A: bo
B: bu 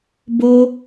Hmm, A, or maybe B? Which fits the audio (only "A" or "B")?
A